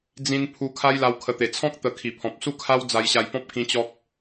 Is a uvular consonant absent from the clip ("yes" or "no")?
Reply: yes